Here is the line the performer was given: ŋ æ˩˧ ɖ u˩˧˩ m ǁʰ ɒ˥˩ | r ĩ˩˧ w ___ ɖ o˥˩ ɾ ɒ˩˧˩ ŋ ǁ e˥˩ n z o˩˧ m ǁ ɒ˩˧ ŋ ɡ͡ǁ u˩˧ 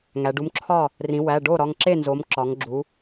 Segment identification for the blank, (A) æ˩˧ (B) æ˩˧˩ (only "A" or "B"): B